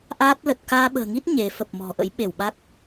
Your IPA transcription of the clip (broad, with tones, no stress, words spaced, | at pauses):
ʔaː˦˥t̚lə˨˩t̚ kaː˧ɓə̤ː˨˩ŋi˦˥t̚ ɲe˨˦ fə˨˩p̚ mɔ̤˨˩ʔə̰˧˥j ɓe˧˩wɓa˦˥k̚